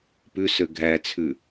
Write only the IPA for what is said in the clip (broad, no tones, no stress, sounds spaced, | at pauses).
p ʉ s ø ɡʱ æ t͡sʰ ʉ